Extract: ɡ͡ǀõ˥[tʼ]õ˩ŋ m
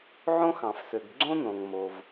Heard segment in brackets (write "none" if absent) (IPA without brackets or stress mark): n